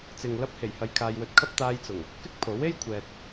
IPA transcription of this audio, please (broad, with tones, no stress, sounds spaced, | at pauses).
t͡s ɪ˨ ŋ l ɐ˧ p̚ h e˨˩ j h ɐ˨ j kʰ aː˧ j w ɵ˧ t̚ kʰ ɐ˥ p̚ t̪ aː˧ j t͡s ʊ˨˩ ŋ | k ɪ˥ k̚ pʰ o˨˥ w e˥ j kʷʰ ɛː˨ t̚